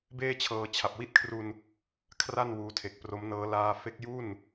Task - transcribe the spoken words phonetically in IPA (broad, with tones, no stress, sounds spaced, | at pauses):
b eː˥˩ t͡ɕʰ ɤː˧ t͡ɕʰ a˨˩ p̚ w i˦˥ t̚ kʰ r u˧ n | kʰ r a˥˩ n w uː˦˥ tʰ e˨˩ k̚ p r o˦˥ m n ɤː˦˥ l aː˧ f e˦˥ k̚ j u˥˩ n